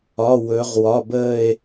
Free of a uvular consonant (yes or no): no